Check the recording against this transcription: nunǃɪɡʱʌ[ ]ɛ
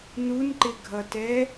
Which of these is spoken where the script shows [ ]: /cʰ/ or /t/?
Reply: t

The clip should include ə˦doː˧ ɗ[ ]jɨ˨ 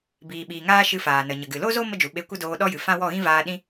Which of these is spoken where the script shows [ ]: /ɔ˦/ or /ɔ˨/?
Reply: ɔ˦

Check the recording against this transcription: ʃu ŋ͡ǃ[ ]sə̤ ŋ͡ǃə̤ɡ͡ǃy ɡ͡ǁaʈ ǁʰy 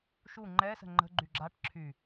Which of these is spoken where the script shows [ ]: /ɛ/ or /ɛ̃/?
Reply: ɛ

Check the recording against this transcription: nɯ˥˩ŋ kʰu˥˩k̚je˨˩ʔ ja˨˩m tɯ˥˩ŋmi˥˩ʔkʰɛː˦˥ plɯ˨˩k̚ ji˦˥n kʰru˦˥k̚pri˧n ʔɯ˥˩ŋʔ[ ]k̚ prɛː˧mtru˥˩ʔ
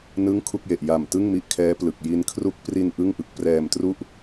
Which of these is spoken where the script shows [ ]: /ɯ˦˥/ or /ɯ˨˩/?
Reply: ɯ˦˥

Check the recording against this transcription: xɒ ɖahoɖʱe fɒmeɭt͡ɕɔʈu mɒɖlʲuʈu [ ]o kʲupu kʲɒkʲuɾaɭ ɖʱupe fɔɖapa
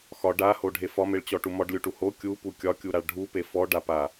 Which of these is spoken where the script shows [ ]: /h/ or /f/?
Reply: h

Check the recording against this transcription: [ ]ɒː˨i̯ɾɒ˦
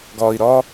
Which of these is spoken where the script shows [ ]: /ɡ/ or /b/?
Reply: ɡ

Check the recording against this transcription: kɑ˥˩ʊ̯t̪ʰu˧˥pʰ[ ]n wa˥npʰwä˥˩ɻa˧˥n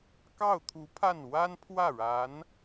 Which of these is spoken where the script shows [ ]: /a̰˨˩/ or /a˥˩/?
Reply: a˥˩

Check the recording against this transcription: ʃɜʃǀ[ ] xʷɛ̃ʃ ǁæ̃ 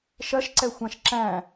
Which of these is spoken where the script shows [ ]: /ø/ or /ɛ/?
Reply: ɛ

